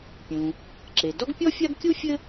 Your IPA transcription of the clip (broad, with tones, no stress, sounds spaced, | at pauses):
pʲ ũ˩ | ǁ e˩ d ɔ˥ ɡ pʲ ɔ˥ fʲ a˥ ɡ kʲ u˥ fʲ ɘ˥